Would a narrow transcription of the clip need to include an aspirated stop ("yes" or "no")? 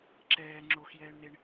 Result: no